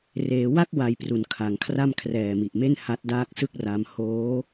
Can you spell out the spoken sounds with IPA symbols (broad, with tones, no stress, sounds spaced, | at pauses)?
r eː˩˦ w a˥˩ k̚ w a˨˩ j p r u˩˦ n kʰ a˩˦ ŋ kʰ r a˥˩ m kʰ r ɛː˨˩ m i˨˩ ʔ m e˥˩ n h a˦˥ t̚ d aː˥˩ k̚ s ɯ˥˩ k̚ r a˧ m h oː˦˥